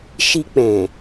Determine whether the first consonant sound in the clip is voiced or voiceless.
voiceless